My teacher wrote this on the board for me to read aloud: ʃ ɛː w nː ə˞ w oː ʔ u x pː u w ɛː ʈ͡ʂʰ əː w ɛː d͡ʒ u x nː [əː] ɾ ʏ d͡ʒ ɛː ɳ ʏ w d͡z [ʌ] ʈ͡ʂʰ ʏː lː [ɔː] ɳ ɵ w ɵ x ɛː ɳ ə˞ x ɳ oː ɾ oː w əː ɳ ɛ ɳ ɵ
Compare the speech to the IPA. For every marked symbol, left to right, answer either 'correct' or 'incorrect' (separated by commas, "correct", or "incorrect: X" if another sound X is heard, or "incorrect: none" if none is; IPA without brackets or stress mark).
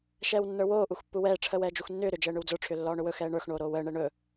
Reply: incorrect: ʏː, incorrect: ə˞, correct